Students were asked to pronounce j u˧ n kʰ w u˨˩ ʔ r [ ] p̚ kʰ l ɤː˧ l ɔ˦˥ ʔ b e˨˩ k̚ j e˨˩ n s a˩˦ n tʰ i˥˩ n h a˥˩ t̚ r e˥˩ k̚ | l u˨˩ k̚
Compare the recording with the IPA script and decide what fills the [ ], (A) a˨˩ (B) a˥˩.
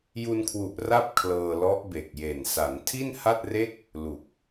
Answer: B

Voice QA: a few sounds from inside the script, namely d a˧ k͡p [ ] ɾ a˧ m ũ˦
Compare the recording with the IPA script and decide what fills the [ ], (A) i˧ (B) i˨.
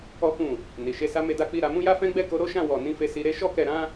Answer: A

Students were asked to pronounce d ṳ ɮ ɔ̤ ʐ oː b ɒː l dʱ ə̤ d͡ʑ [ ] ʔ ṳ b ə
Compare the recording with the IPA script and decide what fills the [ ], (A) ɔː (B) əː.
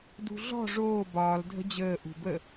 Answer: B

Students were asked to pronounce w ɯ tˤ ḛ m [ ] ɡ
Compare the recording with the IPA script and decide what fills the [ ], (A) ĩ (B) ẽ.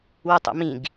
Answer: A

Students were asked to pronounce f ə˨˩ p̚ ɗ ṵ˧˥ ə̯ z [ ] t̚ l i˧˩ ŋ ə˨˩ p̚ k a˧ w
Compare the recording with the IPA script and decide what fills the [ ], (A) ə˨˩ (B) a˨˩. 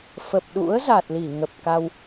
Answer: B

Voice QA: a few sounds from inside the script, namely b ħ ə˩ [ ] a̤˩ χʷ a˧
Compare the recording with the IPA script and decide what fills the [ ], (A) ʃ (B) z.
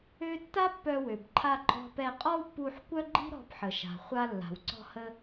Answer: A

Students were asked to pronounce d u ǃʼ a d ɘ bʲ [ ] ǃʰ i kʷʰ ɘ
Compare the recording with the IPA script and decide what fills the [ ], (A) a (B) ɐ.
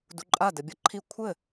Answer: B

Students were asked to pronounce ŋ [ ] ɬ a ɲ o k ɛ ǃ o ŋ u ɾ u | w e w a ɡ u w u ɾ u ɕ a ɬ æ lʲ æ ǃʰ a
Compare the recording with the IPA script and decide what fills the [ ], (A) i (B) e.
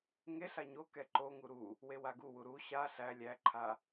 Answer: B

